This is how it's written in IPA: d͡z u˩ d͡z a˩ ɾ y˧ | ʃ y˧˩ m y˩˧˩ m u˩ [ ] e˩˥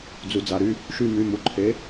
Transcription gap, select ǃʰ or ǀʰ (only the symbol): ǃʰ